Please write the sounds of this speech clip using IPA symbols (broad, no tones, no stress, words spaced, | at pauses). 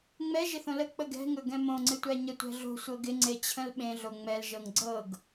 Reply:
ŋ͡mɛ ʒɪθõlə k͡pəɡɛ̤ŋɵ ɡɛ̃mõŋ͡ǀɪtʷæ ɲətʷɛ̤ɮo̤ sʷɤɡɪŋ͡ǀe t͡ɕʰə̃lɓẽ ɮoŋ͡mɛl ʒɤŋɡ͡ǀɤɡ